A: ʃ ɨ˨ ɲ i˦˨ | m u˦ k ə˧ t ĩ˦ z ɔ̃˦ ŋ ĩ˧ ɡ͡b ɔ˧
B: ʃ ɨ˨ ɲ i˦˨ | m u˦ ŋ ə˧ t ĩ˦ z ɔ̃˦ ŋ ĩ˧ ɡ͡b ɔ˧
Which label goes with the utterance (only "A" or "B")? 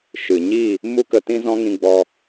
A